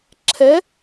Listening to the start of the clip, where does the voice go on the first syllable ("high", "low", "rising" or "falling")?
rising